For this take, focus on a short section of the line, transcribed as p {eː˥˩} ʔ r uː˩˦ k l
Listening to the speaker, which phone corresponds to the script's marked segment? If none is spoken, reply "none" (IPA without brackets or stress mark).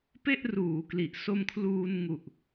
e˥˩